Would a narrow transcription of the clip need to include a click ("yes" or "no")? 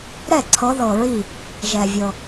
yes